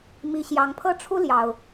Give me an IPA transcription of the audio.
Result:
m i˨˦ ɕ j ɑ˨˦ ŋ pʰ ɤ˦ ʈ͡ʂʰ u˦ l j ɑ˨˩ ʊ̯

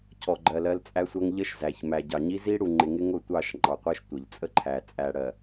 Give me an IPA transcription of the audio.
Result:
cʰ ɔ˨ ɡ͡ǃ ɜ˨ l ɜ˦ l t͡sʼ æ˦ sʷ ɜ˦ ŋ ʎ ə˦ ʃ z æ˨ ç m æ˨ ɟ ɑ˨ ɲ i˦ z i˦ ɽ u˨ ŋ͡ǃ ɪ˨ ŋ ɪ˦ ŋ ʊ˦˨ tʷ ɑ˦˨ ʃ ŋ͡ǃ ɑ˨ qʷ ɜ˦ ʃ tʷ ɪ˨ ʎ t͡sʼ ə˦ ǃʰ æ˨ t͡sʼ æ˨ ɽ ɜ˨

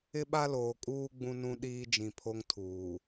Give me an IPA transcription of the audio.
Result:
ɪ˦ ɓ a˦ l oː˨ kʼ uː˦ ɡ͡b ũ˦ n ũ˦ ɗ iː˦ d͡ʒ ĩ˨ pʰ o˦ ŋ tʰ uː˨

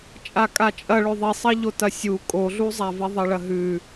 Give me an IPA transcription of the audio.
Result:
t͡ʃʼ a kʼ a t͡ʃʼ ɐ ɭ ɵ ðˤ i sˤ ɐ ʎ o t ɐ sʲ u kʼ o ɮ u zˤ a v i ðˤ ɐ ɭ ɐ ɦ ʉ

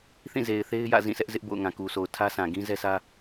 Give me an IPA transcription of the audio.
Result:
θ ĩ˦˨ z e˨ ɪ̯ θ e˦ ɪ̯ j ä̰˦˨ z ĩ˦˨ s ɛ˦ ʔ z ɪ˦ ʔ b o̰˦˨ ʊ̯ ŋ ã˨ k u˨ s o˨ ʊ̯ tʰ ä˦ s ã˨ ɡ ĩ˦ z ɛ˦ s ä˦

